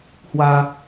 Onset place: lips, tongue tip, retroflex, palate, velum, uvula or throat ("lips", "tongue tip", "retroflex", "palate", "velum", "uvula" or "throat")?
throat